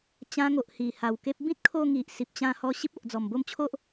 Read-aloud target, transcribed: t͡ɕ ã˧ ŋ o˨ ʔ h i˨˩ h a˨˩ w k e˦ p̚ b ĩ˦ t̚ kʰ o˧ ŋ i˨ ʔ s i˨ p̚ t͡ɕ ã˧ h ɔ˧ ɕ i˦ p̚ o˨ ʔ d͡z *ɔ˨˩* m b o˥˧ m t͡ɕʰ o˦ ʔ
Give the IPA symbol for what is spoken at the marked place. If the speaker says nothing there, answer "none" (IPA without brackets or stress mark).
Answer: ɔ˨˩